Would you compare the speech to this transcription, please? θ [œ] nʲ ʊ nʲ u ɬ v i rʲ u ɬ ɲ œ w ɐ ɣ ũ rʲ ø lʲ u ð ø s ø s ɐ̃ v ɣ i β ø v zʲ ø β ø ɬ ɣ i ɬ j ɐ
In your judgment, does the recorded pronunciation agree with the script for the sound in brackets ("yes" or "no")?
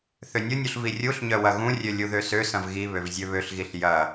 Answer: no